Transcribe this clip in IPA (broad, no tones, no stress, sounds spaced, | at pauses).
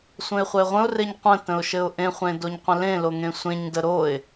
sʷ ə̃ ɪ̯ χʷ ɘ ɪ̯ ʁʷ ə̃ ʊ̯ r e ɲ qʷ ə̃ t ə̃ ʊ̯ ʃ ɘ ʊ̯ ʔ ẽ χʷ ẽ d o ɲ qʷ ə̃ l ẽ l o ŋ ẽ sʷ ẽ ɲ d ə ɾ o ɪ̯